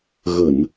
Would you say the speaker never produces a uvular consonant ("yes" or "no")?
yes